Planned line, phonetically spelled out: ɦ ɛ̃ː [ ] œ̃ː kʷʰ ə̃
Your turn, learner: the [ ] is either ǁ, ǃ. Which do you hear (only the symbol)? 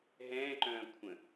ǃ